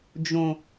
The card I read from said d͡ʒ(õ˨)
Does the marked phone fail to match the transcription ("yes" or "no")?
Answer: no